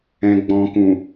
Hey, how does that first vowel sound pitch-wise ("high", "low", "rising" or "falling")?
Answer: low